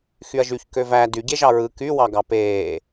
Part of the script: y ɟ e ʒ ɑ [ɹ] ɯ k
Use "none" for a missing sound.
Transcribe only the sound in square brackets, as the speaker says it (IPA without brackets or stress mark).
ɹ